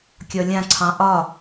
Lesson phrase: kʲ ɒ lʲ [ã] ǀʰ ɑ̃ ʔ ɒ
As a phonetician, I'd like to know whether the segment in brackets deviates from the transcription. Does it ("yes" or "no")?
no